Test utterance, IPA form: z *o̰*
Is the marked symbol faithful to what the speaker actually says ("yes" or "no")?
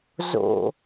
yes